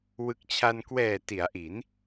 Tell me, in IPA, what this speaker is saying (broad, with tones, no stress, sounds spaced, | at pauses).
w ɯ˨˩ k̚ t͡ɕʰ a˧ n k w ɛː˨˩ t i˩˦ a̯ ʔ i˩˦ n